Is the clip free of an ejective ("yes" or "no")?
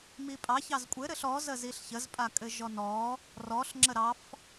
no